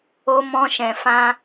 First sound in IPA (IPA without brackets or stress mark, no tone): o